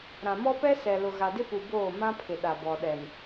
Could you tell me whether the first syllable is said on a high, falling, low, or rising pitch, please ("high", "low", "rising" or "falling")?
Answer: low